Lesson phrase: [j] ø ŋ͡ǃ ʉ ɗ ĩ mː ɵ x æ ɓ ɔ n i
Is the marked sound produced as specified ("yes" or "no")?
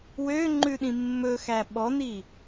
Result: no